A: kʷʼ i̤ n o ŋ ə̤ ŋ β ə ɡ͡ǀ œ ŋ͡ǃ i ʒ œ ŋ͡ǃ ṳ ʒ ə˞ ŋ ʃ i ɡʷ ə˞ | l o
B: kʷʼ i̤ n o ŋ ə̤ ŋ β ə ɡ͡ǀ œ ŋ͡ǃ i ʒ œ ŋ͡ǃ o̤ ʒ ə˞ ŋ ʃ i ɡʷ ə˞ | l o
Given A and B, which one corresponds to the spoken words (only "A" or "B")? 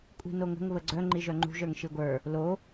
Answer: A